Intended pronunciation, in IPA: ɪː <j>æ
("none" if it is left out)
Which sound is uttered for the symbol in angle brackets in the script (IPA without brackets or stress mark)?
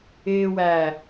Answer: w